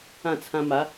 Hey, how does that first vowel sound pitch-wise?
falling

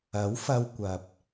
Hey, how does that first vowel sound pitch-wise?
rising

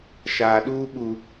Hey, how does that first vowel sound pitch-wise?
low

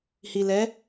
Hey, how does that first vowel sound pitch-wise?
low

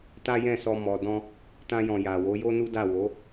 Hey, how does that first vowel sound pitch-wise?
high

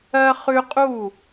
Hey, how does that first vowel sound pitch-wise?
high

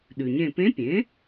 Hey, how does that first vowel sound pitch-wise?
low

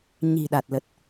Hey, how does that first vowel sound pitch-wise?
low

